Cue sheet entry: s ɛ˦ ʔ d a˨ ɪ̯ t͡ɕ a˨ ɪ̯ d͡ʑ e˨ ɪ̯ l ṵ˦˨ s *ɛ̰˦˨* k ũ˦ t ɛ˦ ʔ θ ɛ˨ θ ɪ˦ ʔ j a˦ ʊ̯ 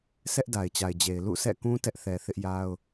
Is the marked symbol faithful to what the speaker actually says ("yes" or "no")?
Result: yes